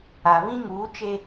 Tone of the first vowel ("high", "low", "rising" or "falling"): low